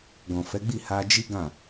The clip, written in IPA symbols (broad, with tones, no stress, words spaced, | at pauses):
ɡɔ̃˨fɛ˨˦ɡ͡bi˦˨ ha˧d͡ʒi˦ɡã˦˨